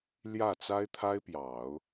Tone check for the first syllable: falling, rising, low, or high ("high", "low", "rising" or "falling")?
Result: falling